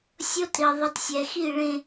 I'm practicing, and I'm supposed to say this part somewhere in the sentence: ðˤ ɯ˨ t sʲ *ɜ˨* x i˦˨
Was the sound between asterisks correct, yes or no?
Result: no